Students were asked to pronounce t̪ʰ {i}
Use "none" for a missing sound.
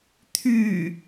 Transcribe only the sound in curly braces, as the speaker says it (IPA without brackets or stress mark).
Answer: y